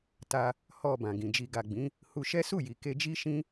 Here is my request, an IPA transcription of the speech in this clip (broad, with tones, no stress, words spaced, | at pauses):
ta˧ | hɔ˨ bã˨ɡĩ˨ d͡ʒi˨ɡa˨ɡ͡bĩ˨˦ | hu˧ʃɛ˦su˦˨ji˨ ke˧d͡ʒi˦ʃĩ˦